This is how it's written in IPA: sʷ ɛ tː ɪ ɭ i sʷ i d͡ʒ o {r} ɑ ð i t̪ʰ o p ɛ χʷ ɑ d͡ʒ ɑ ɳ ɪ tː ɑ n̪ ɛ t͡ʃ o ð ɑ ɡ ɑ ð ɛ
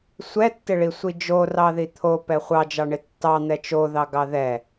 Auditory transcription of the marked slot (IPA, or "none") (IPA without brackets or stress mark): r